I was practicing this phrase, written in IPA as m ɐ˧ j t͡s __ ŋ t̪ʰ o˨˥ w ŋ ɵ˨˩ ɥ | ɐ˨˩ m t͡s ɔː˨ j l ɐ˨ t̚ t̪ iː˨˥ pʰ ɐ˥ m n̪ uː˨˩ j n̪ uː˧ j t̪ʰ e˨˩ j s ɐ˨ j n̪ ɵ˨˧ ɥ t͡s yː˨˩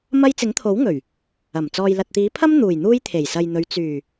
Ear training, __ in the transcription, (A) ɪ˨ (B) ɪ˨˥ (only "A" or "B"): B